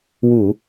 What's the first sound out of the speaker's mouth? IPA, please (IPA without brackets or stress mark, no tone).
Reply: w